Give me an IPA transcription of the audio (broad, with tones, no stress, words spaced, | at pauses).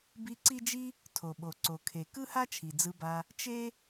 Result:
bi˦ǀi˥d͡ʒi˥ | tʰo˨ɓo˨ǀo˨ kʰe˨ kɯ˥ha˥t͡ʃʰi˩ d͡zɯ˦ba˦ | t͡ʃe˥